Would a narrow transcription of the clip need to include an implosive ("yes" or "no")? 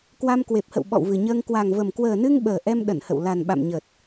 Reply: yes